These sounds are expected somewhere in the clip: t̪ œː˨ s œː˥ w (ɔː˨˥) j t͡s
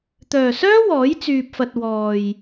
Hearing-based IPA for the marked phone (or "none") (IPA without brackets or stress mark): ɔː˨˥